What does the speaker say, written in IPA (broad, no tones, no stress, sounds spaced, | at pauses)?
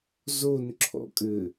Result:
z o n ǁʰ ɔ̰ kʼ ɘ